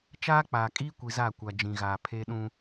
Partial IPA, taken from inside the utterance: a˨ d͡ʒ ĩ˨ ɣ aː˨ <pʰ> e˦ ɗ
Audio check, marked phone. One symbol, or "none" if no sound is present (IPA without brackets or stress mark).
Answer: pʰ